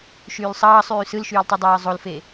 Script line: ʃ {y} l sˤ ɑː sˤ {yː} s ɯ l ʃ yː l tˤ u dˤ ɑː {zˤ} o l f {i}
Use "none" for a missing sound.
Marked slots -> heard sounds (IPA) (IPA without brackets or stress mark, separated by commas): yː, yː, zˤ, e